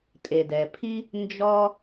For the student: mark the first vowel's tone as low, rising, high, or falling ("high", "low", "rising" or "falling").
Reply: low